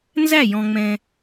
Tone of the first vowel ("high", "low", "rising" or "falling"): falling